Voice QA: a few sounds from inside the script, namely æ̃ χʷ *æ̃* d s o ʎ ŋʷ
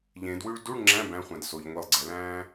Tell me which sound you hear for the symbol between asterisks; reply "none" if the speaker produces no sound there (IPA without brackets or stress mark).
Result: æ̃